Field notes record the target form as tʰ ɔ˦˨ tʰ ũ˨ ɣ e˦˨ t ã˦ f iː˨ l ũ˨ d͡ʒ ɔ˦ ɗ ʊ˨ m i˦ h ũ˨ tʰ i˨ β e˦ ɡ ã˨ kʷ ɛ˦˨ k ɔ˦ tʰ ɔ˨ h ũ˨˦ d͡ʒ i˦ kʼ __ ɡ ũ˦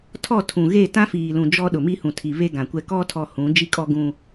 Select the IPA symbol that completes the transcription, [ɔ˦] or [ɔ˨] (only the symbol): ɔ˦